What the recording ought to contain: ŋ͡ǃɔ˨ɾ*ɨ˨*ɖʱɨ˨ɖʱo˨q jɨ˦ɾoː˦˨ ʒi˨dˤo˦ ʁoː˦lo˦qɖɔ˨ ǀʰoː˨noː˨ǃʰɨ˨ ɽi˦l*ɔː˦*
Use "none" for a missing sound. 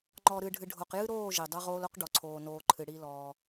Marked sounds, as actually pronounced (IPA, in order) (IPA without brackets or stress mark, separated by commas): ɨ˨, ɔː˦